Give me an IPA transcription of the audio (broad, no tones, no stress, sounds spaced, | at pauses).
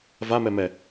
v a m ɛ m ɛ